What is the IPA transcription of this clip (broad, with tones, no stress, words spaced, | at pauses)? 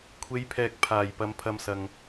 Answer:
kʷʰe˨˧jpʰɛː˨k̚pʰaː˨˩j pɐ˨˧mpʰɐ˧msɐ˨ŋ